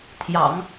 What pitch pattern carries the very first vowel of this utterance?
low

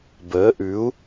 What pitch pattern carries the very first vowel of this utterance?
rising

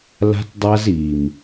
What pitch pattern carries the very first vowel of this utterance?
high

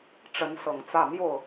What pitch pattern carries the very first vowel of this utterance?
rising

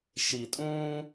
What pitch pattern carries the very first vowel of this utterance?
low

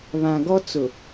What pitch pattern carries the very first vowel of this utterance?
low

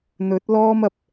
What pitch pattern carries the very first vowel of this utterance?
rising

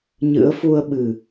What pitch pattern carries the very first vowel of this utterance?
rising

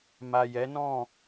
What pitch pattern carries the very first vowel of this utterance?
low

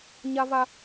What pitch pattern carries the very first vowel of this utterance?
high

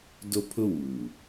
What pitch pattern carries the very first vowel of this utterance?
high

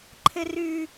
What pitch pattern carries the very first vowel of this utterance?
high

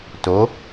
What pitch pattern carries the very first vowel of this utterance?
rising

